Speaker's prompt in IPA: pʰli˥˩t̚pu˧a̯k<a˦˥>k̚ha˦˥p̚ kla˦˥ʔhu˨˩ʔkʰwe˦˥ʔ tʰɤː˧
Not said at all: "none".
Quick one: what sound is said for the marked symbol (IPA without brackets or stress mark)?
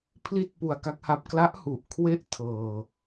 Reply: a˦˥